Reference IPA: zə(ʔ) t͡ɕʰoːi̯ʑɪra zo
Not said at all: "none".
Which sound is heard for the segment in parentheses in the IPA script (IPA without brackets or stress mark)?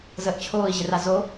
ʔ